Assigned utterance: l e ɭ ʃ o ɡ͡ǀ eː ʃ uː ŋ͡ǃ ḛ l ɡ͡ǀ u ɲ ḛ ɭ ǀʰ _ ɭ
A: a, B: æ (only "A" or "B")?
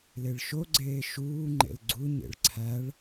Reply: B